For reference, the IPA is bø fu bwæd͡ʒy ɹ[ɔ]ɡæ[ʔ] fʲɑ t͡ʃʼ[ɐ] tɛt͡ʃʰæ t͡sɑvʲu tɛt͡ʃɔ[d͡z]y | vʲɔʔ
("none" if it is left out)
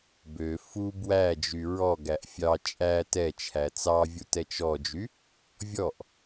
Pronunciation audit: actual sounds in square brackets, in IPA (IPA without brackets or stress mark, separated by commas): ɔ, ʔ, æ, d͡ʒ